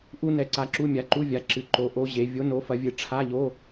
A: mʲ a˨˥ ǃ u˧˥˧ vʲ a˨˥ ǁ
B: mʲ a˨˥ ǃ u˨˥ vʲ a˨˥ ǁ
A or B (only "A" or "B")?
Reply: A